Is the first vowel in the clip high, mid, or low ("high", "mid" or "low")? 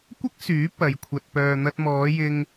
low